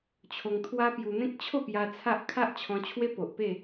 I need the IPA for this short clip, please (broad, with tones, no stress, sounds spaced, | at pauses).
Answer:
t͡ɕʰ o˧ ŋ t̪ʰ w a˦ p j u˧ n̪ ẽ˦ k̚ t͡ɕʰ o˥˧ p j a˧ t͡sʰ a˦ ʔ kʰ a˦ ʔ t͡ɕʰ ɔ̃˧ t͡ɕʰ w e˦ p o˨ ʔ p e˥˧